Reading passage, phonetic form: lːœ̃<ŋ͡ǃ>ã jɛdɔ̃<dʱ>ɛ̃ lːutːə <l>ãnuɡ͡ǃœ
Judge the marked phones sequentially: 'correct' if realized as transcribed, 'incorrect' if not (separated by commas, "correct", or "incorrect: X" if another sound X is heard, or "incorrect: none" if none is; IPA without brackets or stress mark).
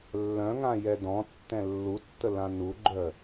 incorrect: ŋ, incorrect: tː, correct